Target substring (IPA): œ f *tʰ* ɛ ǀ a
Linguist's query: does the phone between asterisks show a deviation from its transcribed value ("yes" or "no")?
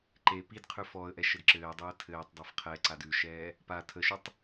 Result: yes